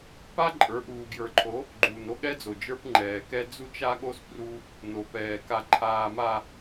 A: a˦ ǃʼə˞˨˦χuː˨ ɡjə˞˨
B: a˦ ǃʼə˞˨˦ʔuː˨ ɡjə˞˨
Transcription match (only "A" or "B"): B